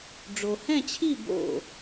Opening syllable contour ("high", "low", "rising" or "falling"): low